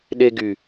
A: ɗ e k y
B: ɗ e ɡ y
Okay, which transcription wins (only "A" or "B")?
B